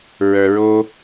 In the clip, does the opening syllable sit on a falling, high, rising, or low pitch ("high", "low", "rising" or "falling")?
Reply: low